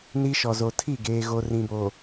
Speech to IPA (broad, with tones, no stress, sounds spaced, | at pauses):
n i˦ ʃ ɔ˨ z o˨ tʰ i˦˨ ɡ eː˨ ɣ o˨ r ĩ˨ b o˨